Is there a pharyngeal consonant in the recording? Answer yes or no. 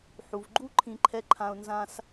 yes